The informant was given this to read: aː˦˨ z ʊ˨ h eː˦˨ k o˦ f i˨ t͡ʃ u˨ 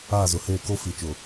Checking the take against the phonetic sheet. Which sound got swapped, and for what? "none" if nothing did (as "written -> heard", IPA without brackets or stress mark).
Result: u˨ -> ʊ˨